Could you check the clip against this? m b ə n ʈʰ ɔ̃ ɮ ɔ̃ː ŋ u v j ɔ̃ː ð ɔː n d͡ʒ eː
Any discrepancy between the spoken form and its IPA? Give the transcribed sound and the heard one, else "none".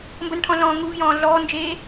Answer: ð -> ɮ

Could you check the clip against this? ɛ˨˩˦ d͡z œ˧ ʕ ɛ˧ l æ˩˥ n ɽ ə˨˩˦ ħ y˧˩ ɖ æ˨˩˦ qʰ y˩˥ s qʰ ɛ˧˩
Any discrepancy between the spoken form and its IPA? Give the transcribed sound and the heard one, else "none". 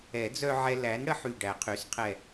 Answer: none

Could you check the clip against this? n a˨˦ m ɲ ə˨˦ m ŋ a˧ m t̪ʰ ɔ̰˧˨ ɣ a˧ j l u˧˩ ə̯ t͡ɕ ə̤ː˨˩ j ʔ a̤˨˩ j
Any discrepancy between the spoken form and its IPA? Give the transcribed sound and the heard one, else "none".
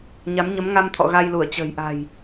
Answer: n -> ɲ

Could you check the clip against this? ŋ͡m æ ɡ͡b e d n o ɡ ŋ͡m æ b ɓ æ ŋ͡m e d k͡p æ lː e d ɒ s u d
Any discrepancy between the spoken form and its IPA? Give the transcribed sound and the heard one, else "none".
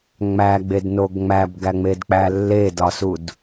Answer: ɓ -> ɡ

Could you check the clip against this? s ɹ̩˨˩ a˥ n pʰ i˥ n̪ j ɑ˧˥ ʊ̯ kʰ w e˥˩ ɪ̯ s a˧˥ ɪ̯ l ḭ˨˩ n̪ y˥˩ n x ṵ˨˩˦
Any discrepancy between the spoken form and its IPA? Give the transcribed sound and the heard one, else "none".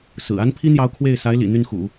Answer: none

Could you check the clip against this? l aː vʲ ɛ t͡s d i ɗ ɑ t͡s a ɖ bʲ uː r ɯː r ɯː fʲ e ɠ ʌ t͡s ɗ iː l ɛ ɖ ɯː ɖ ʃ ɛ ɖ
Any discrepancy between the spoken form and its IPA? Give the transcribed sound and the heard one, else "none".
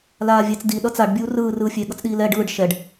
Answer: ɑ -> ʌ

